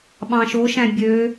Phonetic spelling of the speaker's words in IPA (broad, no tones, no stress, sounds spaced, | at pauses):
ɓ ɑ̃ ʃ o ʃ æ̃ bʲ ø